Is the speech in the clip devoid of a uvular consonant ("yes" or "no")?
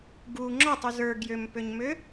yes